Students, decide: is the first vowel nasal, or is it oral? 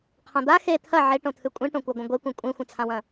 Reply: nasal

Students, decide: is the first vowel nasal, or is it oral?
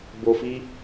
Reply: oral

